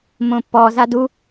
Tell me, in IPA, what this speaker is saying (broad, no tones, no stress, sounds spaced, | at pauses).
m õ pː ɔ z a d u